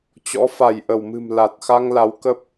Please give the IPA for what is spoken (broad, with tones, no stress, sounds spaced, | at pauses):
t͡ɕ ɔ̰˧˥ f a˧˩ j ʔ ə˧˩ w m ɨ̤˨˩ m l a˨˩ t̚ x a˧ ŋ l a˨˦ w k ə˦˥ p̚